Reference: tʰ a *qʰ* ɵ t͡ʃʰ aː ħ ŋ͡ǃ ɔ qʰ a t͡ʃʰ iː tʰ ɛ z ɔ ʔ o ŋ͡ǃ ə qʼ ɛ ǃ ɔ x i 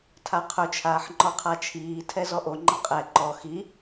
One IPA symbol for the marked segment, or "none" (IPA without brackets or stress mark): qʰ